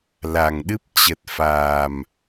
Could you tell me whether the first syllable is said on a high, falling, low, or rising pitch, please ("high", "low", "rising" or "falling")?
low